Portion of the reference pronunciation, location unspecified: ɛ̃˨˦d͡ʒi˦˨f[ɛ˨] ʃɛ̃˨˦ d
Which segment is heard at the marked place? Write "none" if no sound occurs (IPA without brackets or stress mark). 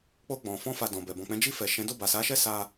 ɛ˨